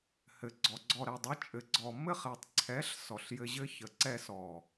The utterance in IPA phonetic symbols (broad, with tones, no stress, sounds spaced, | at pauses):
h ɘ˨ ɡ͡ǀ ɔ˨ ɡ͡ǀ ɔ˨ ɾ ɛ˨ dˤ ɘ˨˦ t͡ʃʼ ɘ˨ ɡ͡ǀ ɔ˨ m ɘ˦ χ ɛ˨ tˤ ǀʰ ɛ˨˦ ɬ s ɔ˨ ɬ j ɘ˧ ʑ ɘ˦ ç ə˨ ǀ ɛ˧ s ɔ˨